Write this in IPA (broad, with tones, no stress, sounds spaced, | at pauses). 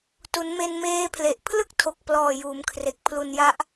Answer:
t u˩˦ n m e˧ n m eː˦˥ pʰ l e˨˩ ʔ pʰ l ɯ˥˩ k̚ tʰ o˨˩ k̚ p l ɔː˨˩ j uː˩˦ m kʰ r e˨˩ k̚ pʰ l u˧ n j a˦˥ ʔ